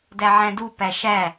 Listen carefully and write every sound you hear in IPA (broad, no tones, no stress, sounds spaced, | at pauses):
d æ ʕ æ̃ d u p æ ʃ æ